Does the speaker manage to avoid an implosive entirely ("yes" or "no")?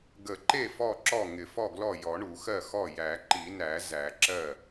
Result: yes